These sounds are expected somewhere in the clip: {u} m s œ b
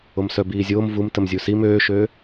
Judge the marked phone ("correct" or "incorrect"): incorrect